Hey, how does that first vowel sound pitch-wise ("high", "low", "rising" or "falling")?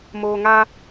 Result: low